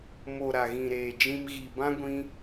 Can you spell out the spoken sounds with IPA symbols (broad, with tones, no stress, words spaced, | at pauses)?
mo˨ ɾa˨ɣĩ˨ɾeː˨d͡ʒĩ˧m ɣi˨bã˦ ɡʷĩ˦